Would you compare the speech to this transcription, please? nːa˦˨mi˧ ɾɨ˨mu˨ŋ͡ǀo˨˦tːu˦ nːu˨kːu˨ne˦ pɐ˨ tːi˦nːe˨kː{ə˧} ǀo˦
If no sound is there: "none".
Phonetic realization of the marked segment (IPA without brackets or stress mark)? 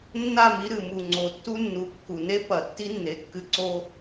ɨ˧